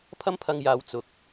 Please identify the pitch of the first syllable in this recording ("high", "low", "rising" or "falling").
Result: high